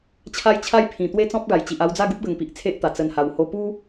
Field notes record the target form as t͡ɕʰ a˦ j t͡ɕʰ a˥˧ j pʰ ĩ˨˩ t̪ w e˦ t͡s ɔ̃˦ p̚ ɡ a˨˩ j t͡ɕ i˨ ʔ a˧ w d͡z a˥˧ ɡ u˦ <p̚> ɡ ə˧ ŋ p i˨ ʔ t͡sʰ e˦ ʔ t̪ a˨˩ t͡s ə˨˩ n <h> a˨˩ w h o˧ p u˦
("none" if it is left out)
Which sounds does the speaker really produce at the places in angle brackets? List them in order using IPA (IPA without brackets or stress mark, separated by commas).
p̚, h